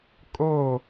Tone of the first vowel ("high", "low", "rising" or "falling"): falling